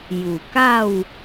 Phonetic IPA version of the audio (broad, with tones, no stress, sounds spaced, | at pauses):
j u˨˩ k a˥˧ w